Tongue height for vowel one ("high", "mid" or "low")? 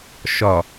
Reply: low